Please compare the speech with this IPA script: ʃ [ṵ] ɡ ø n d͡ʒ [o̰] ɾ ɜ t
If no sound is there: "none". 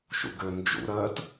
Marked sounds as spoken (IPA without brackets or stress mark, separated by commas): ṵ, ṵ